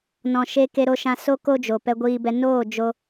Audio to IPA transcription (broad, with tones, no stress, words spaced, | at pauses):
nɔ̃˨ ʃe˧ ke˧ɾo˧ʃã˧ so˦ ko˦d͡ʒo˨ pɛ˧ɡʷiː˧bɛ˧ noː˦˨ d͡ʒo˧